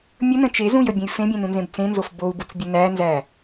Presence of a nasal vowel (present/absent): present